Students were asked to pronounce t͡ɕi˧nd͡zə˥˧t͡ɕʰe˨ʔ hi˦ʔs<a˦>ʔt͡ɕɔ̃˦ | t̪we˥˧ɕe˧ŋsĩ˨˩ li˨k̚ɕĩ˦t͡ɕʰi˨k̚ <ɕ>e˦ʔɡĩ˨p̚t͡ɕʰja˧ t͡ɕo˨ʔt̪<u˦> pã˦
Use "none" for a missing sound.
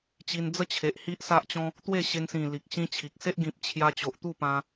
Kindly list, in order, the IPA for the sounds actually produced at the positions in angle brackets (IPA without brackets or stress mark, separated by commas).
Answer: a˦, s, u˥˧